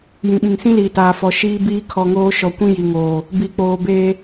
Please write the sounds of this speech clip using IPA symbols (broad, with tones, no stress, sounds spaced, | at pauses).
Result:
j ĩ˨ ɓ ĩ˨ ŋ s ĩ˦ l iː˨ t aː˨ f ɔ˨ ʃ iː˦ b iː˦ kʰ ɔ˨ ŋ oː˦ ʃ ɔ˨ kʷ ĩ˦ j i˨ ŋ oː˨ | b i˨ k͡p oː˨ b eː˦